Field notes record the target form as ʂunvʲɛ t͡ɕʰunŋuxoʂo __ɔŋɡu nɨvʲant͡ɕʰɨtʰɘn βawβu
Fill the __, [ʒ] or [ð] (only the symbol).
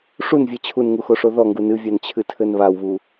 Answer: ð